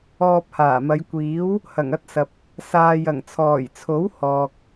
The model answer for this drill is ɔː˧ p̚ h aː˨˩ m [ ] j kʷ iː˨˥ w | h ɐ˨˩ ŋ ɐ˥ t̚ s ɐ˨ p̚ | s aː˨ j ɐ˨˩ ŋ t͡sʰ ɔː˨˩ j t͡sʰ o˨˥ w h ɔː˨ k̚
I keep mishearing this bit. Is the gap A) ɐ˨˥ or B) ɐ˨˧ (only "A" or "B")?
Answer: B